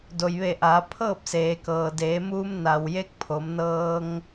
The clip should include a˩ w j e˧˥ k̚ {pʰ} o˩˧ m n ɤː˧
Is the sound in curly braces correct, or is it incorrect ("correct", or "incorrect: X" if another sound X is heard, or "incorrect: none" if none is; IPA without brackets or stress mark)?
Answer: correct